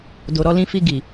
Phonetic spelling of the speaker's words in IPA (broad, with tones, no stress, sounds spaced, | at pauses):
d o˨ ɾ ɔ˧ l ĩ˧ f i˧ ɡ i˨